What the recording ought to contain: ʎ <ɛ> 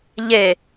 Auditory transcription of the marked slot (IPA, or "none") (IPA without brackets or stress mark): e